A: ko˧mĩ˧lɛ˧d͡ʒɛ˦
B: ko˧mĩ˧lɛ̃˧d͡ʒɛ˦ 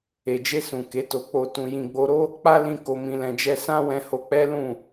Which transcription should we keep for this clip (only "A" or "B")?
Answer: B